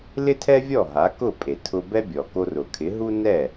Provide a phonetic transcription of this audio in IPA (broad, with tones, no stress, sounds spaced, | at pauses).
l ɪ˥ tʰ ɛ˥ vʲ ɔ˥˩ ɦ a˩˥ k ʊ˥˩ pʼ e˩ tʰ ʊ˧ b ɛ˥ bʲ ɔ˩ k o˧ r ʊ˩ kʰ ɪ˩˥ ɦ u˥ n ɛ˥˩